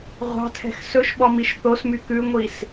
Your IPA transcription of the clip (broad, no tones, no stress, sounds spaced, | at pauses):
ʁʷ ɑ̤ tʰ ɛ̤ x s ɵ ʃ ɓ ɔ m i ʃ θ o s m y k ʉ ŋʷ i s